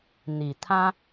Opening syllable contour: low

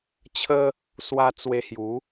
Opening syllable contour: high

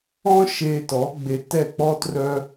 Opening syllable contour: high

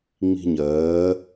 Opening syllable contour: high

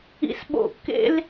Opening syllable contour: high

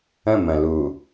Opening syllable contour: falling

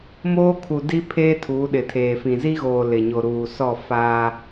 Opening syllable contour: high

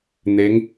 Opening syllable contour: rising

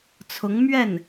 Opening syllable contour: rising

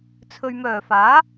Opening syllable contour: low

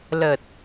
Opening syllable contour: low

